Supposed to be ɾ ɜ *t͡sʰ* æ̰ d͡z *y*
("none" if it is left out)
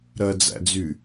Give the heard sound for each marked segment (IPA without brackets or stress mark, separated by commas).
d͡z, y